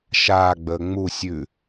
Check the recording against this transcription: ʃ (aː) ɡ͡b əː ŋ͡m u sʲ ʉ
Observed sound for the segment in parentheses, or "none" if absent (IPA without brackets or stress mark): aː